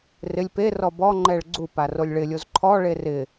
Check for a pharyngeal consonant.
absent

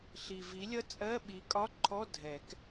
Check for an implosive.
present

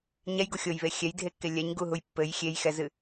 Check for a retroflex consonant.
absent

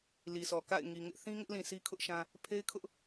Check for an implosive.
absent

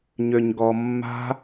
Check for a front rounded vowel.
present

